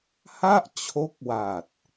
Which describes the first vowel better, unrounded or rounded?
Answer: unrounded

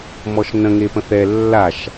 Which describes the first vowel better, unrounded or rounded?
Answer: rounded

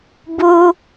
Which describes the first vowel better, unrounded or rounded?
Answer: rounded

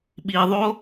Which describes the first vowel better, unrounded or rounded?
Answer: unrounded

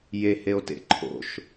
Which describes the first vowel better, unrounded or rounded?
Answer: unrounded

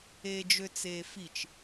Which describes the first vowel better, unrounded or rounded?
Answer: unrounded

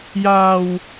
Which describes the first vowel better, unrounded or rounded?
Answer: unrounded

